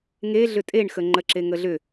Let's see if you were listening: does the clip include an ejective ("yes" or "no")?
yes